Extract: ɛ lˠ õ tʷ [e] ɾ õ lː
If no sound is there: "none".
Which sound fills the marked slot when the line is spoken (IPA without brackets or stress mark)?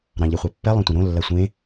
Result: ẽ